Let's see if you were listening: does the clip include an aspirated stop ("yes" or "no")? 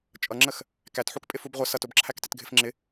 yes